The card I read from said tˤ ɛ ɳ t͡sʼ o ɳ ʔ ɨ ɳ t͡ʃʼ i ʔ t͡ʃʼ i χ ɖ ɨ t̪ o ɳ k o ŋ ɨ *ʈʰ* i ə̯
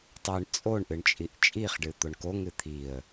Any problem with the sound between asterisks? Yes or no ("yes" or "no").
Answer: yes